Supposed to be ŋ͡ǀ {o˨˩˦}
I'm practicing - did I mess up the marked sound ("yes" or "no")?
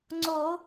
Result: no